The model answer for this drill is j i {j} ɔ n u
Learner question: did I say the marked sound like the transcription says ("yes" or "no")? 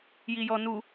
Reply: yes